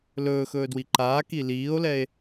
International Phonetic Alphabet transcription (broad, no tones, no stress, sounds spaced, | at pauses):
l ɵː x ɵː d w i ǃ aː k i l iː o̯ l ɛ e̯